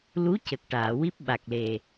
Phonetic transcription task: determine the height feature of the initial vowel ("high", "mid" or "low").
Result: high